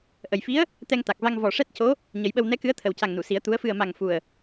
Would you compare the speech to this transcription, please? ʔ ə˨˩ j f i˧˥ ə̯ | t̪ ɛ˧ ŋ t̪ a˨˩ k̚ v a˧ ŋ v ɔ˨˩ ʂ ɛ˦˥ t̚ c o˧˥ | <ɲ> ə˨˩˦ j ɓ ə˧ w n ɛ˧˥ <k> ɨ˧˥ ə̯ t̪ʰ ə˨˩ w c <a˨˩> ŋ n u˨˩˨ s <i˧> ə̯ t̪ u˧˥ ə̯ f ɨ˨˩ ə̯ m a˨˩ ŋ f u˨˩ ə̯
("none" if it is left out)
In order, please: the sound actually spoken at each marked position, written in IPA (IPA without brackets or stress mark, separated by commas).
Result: ɲ, k, a˨˩, i˨˩˦